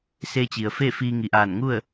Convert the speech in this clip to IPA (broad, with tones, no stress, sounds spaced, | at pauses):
s e˧ t͡ɕ i˩ ə̯ f e˥˨ f iː˧ ŋ i˩ ʔ aː˧˩ n ŋ u˥˨ ə̯